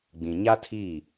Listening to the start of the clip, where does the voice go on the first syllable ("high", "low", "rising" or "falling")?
low